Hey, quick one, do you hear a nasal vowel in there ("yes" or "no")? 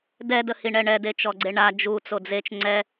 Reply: no